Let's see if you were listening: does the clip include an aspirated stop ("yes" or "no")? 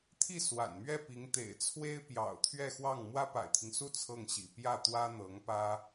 yes